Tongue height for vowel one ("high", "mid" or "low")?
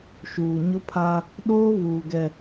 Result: high